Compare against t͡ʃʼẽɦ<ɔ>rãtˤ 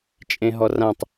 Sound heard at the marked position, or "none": ɔ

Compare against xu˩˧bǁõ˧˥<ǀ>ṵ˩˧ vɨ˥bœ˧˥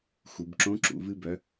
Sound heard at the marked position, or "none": ǁ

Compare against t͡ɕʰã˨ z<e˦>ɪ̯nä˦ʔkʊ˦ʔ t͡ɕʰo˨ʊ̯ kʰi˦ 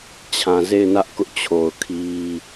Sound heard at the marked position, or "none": e˦˨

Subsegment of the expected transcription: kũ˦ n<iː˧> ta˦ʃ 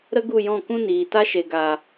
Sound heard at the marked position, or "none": iː˨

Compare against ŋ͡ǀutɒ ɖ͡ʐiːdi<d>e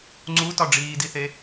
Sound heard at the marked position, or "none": θ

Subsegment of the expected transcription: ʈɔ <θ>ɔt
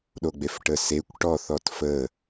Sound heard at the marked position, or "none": θ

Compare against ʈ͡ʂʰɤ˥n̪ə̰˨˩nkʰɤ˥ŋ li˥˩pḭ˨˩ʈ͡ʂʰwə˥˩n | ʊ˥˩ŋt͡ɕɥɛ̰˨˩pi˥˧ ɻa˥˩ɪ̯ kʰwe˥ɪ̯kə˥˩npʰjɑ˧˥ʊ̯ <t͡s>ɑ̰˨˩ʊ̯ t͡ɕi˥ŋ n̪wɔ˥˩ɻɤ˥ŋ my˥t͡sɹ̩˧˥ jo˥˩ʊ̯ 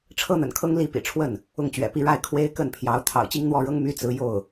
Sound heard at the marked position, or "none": t̪ʰ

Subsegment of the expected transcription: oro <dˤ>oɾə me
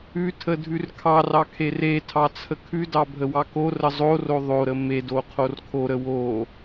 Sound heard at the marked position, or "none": ðˤ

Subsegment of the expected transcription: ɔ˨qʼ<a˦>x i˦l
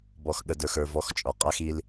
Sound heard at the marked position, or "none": a˦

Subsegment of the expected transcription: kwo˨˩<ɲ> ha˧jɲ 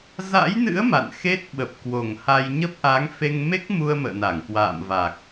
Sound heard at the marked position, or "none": ŋ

